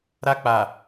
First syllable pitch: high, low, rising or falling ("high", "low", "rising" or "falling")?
high